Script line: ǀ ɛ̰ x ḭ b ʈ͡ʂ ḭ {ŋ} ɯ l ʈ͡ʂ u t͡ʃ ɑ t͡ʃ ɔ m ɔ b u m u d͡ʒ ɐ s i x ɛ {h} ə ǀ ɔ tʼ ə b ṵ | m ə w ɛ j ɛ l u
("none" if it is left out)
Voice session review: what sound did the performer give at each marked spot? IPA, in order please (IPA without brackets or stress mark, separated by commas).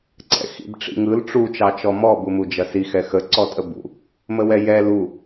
ŋ, x